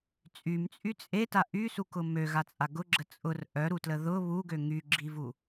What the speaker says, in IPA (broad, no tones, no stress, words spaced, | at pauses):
t͡sʼymt͡sʼy t͡sʼeta ʔysukʊ møɣat͡sʼa ɡʊɡ͡ǁə t͡sʼʊr ʔœɾutlə ðʊ βuɡø ŋyɡ͡ǁivu